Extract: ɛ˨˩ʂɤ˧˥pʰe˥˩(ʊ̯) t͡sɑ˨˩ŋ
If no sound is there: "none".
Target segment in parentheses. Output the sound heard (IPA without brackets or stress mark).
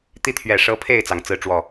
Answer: ɪ̯